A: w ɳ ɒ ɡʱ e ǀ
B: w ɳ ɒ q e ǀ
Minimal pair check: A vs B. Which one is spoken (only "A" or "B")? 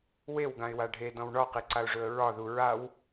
B